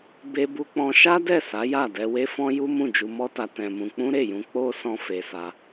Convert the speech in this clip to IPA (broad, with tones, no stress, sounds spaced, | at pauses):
b e˧ b u˧ k͡p ɔ̃˧ ʃ a˦ d ɛ˦˨ s a˨˦ j a˦˨ d ɛ˧ w e˦ f ɔ̃˦ j u˦ m ũ˦˨ d͡ʒ u˧ m ɔ˦ t a˧ t ɛ̃˧ m ũ˧ k͡p ũ˦ ɾ e˦˨ j ũ˧ k͡p o˦ s ɔ̃˦ f e˧ s a˧